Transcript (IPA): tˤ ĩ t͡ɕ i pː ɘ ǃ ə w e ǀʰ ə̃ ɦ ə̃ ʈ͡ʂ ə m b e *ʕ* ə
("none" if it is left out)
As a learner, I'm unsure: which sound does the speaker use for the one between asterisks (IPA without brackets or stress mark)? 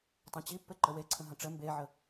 ʕ